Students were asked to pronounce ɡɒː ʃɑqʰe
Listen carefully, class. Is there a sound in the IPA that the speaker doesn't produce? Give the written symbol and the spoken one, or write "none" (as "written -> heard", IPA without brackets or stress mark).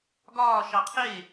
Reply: none